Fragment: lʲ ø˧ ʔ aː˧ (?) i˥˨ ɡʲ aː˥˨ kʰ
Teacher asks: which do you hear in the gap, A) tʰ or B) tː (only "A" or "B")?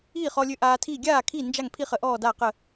A